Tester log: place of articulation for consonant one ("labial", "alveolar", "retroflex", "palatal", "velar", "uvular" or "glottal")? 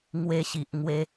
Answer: velar